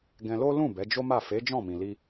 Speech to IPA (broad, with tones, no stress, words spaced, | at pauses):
ɡɛ̃˧lo˦ lũ˦˨ bɛ˨˦d͡ʒo˦ma˦˨ fe˨˦ d͡ʒɔ̃˦˨mĩ˨li˧